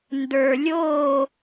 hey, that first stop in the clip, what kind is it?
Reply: plain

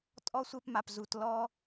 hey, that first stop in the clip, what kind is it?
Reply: ejective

